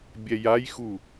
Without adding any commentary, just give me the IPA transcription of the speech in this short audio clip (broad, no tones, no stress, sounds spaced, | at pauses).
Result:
bʲ ɛ j a j x u